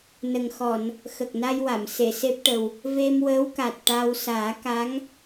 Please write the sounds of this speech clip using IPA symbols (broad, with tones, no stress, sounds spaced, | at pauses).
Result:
n ə˨˩ ŋ x ɔ˨˩˨ n | x ə˨˩ k̚ n a˧ j w a˨˩˨ m s e˨˩˨ s e˦˥ p̚ ʈ ə˨˩ w | v e˧ m w əː˧˥ w k a˨˩ t̚ ʈ a˧ w s aː˨˩˦ k a˧˥ ŋ